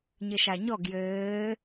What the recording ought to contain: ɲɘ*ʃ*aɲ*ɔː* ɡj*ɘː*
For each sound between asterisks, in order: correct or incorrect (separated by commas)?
correct, incorrect, correct